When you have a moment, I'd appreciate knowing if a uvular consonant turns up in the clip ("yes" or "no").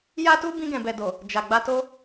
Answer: no